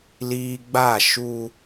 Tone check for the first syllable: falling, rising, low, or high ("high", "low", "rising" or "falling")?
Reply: low